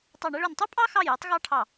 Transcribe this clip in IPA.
tˤɑ˦˨ɳɛ˥ɭø˦˨n tˤy˥pʼɑ˥xɑ˦˨j ɛ˥tˤɣɑ˥ʈʰɑ˦˨

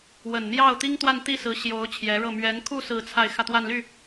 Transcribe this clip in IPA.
wə˨˩nn̪jɑ˥˩ʊ̯t̪i˥ŋt̪wa˥˧n t̪i˥˩sɹ̩˧˥ɕjo˧˥ʊ̯ t͡ɕʰjɛ˧˥ɻɤ˥˩ mɥɛ˧˥nkʰu˥˧ sɹ̩˥˧t͡sʰa˥˧ɪ̯ xä˥˧t̪wa˥˧nly˥˩

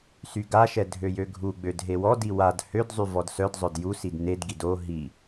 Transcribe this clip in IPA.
syɡaʃɛ dʱøjøɡʱuɡ͡bød ɦewɔdi wad hødzˤy vɔdsœdzˤœd jusid nedɡid o ɦi

